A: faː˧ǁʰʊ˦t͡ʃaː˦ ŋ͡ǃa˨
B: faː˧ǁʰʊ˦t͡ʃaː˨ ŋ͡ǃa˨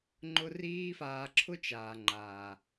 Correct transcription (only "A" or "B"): B